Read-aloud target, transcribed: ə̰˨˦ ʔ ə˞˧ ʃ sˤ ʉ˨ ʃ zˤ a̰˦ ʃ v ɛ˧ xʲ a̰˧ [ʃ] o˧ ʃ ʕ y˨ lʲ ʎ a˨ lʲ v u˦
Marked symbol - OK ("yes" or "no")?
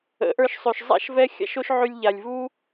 yes